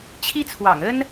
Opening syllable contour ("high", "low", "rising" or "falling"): high